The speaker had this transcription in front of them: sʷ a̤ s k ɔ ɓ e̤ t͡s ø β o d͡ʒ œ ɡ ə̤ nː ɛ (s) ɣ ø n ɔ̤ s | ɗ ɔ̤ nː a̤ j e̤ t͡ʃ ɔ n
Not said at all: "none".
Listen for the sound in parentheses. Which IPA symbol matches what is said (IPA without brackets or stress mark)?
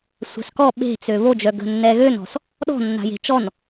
none